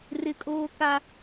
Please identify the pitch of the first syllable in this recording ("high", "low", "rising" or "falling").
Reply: low